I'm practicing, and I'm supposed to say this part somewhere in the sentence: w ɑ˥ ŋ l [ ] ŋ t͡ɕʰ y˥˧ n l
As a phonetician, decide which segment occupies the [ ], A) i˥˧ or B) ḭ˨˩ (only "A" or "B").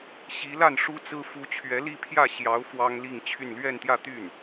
A